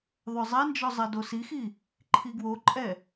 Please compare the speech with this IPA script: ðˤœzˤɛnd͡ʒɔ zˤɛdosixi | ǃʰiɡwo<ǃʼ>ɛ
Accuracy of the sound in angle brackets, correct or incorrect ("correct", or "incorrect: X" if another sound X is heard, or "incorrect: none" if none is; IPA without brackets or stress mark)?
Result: correct